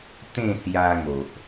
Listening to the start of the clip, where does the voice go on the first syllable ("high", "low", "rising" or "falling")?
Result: falling